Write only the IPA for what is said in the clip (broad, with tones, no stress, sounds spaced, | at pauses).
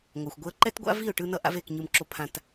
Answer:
ŋʷ a˩ xʷ ɡʷ e˧ ə̯ ǃ ɛ˥ t ɡʷ a̰˥ v i˥˩ ʊ̯ ʈ ɯ˧ n ʌ˥ ʔ a̰˥ v e˥˩ k ɲ ɯ˧ m ǁ o˧ pʰ ã˧ t